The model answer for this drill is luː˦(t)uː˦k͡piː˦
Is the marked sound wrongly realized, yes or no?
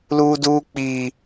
yes